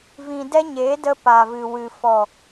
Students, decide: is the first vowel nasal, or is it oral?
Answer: nasal